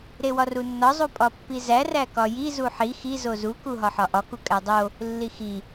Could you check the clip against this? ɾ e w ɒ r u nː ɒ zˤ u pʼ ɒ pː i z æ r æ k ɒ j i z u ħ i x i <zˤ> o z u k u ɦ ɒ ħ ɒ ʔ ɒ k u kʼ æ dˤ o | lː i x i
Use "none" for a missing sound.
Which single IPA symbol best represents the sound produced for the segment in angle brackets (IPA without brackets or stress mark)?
z